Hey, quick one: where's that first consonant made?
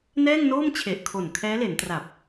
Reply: tongue tip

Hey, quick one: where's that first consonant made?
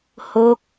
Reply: throat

